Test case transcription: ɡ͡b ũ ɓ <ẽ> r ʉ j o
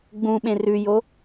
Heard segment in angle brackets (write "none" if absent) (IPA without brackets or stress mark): ẽ